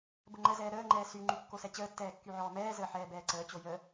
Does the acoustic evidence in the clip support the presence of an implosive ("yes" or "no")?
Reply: no